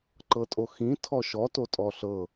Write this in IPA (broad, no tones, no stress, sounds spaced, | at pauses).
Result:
ǃ ɤ tʼ o x ĩ tʰ ɔ ʃ ɔ t o tʼ ɔ ɬ ɤ